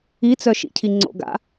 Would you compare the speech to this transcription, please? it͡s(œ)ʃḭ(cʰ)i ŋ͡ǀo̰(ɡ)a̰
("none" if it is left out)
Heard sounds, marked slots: œ, cʰ, ɡ

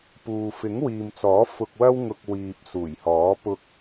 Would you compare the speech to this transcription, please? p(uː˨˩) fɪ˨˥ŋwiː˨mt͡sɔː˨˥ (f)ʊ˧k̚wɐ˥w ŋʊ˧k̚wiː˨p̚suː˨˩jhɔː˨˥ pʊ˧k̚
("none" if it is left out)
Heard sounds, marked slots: uː˨, f

